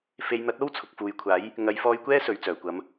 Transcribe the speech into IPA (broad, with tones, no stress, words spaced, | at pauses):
fe˨˧jn̪ɐ˨˥t̚ o˥wt͡sʰʊ˨k̚ fuː˨jkʷʰaː˨˥j | ŋɐ˨˧j fɔː˧jkʷɛː˥ sɵ˨ɥt͡sœː˨˩kʷɐ˨˧m